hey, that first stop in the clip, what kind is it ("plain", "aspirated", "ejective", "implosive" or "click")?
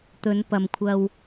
plain